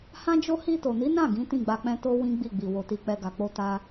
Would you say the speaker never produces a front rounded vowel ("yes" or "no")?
yes